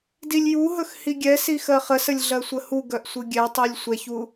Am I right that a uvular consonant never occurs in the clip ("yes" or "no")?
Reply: no